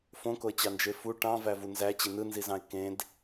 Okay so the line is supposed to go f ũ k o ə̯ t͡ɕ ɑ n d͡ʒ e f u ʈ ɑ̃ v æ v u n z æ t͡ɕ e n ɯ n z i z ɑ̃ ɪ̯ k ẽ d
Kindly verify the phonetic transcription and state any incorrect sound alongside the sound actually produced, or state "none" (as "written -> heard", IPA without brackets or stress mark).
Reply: ũ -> õ